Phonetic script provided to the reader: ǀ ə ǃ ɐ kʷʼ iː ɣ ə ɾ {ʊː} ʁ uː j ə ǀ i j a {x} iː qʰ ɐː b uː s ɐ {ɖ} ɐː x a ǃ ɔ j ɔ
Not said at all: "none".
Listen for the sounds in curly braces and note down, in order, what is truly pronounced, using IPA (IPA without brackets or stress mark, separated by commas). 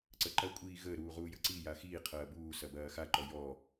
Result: uː, x, b